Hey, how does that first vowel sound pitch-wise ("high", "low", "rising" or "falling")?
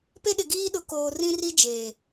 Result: high